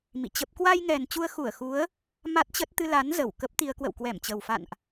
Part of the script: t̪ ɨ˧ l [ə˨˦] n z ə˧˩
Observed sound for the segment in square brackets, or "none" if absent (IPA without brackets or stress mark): a˨˦